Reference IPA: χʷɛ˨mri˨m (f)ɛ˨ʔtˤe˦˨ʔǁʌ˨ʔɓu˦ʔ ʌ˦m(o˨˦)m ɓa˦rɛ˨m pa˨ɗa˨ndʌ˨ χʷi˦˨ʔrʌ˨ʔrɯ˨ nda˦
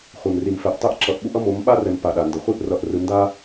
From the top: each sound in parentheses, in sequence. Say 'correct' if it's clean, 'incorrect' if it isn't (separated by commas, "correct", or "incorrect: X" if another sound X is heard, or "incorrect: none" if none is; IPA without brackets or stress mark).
correct, correct